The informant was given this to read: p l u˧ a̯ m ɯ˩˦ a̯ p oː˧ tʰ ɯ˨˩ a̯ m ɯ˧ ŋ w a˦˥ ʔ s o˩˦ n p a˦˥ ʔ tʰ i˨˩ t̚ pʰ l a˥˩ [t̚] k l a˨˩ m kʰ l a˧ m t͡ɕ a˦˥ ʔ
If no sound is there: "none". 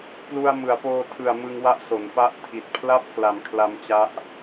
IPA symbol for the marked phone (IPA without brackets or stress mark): p̚